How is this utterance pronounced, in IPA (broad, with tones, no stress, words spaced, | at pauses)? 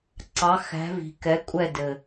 ǀɑ˩˧xæ̤˩˧vi̤˩ kɛ˩˧ kʷʼɛ˧˩ dɘ˩